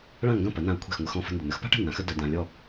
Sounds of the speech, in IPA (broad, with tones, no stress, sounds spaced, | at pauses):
ɭ ã˥˩ ŋ ɡ ɐ̃˥˩ p ɐ˩˥ n ã˧ ɐ̯ kʷʰ e̤˥˩ x ŋʷ ə˧ x ɔ̃˧ f ə̤˧ n d ə˩ n ə˩˥ x p a̤˥ ʈ ə̤˥˩ n ã˩˥ x ə˥ d ɐ˧ d ã˧ lʲ ɔ˥˩